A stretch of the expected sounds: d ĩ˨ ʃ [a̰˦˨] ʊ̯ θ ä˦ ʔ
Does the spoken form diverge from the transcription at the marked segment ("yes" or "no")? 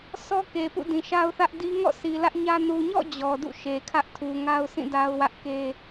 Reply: yes